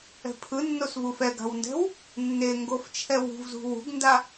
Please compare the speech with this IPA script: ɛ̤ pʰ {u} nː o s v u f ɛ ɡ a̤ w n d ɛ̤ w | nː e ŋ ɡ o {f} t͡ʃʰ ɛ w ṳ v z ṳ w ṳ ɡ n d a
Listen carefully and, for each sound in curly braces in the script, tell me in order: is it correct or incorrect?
incorrect: ɯ, correct

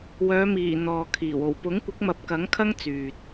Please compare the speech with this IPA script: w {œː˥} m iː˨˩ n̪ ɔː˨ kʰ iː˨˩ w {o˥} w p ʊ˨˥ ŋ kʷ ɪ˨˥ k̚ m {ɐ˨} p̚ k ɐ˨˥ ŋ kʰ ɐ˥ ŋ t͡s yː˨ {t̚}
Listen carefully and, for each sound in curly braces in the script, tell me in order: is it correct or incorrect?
incorrect: œː˨˧, incorrect: o˨˩, correct, correct

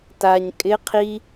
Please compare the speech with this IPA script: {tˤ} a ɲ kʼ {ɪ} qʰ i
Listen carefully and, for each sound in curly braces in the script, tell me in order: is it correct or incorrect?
incorrect: t, correct

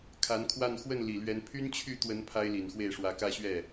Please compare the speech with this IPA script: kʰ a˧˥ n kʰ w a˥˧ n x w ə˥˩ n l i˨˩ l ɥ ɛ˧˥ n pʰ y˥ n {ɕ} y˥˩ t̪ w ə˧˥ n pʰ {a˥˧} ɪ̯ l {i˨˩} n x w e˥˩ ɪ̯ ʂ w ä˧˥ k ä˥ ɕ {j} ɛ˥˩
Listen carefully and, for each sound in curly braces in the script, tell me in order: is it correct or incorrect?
incorrect: t͡ɕʰ, incorrect: a˥, correct, incorrect: ɥ

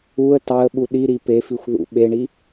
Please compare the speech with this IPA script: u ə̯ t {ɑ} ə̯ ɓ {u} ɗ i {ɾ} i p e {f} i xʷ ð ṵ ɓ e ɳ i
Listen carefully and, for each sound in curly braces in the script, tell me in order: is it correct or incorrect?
correct, correct, correct, correct

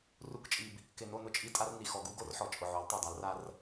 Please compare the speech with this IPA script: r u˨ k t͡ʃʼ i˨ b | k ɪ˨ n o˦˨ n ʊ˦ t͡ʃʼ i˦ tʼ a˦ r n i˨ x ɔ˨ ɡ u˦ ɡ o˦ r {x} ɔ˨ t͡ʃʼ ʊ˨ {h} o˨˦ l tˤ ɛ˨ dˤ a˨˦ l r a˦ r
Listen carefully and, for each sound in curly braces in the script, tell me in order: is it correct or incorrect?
incorrect: ħ, incorrect: ʕ

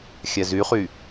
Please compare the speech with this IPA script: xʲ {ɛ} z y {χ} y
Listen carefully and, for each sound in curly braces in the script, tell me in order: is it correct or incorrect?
correct, correct

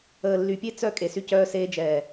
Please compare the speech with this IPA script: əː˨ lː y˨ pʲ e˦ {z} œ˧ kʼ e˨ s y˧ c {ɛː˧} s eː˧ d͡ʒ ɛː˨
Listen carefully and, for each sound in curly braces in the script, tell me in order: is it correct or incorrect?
incorrect: t͡s, incorrect: œː˧

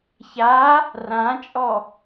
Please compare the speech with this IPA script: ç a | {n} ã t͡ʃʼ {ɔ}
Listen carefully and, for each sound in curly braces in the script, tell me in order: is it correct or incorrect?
incorrect: r, correct

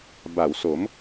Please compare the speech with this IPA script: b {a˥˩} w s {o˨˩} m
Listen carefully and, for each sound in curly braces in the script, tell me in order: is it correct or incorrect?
incorrect: a˩˦, incorrect: o˩˦

